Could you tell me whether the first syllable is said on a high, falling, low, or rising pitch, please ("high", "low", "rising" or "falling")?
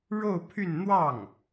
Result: falling